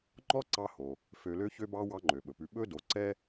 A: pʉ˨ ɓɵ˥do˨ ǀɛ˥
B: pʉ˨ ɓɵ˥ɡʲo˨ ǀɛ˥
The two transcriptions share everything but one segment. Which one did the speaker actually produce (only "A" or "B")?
A